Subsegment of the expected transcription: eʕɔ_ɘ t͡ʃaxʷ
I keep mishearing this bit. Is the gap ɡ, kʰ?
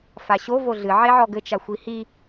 ɡ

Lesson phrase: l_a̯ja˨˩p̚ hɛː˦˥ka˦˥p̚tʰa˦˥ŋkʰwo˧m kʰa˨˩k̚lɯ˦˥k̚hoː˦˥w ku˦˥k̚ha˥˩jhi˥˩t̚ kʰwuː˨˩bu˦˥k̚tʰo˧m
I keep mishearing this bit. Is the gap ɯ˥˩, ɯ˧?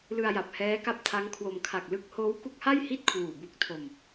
ɯ˧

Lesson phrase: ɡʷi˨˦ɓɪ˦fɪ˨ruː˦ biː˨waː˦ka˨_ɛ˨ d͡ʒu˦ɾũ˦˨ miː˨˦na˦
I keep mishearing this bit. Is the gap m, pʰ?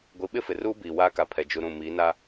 pʰ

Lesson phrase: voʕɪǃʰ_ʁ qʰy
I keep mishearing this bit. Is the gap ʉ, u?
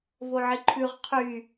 ʉ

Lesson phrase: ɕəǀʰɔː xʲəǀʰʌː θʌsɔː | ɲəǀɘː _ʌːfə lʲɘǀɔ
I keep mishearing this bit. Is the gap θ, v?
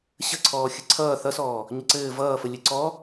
v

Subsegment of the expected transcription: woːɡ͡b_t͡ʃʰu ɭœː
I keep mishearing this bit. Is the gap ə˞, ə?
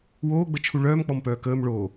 ə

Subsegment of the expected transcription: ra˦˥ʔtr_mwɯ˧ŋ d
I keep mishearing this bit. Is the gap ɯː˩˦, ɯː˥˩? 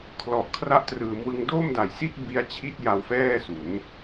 ɯː˩˦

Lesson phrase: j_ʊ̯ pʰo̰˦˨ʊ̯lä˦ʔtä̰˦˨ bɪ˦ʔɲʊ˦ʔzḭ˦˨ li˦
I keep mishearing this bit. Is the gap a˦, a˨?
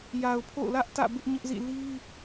a˨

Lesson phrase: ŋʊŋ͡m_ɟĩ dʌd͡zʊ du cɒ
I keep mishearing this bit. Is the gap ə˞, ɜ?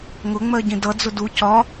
ɜ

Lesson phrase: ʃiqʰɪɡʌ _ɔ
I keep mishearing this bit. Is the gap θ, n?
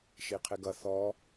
θ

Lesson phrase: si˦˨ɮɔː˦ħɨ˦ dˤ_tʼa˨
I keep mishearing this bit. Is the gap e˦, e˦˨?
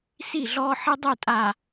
e˦˨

